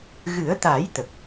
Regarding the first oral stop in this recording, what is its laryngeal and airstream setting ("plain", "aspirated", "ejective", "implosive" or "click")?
plain